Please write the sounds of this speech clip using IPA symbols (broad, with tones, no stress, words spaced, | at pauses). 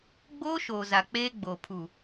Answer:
ɡ͡boː˦ʃoː˨ za˨k͡peː˦ ɡ͡boː˨pʰu˨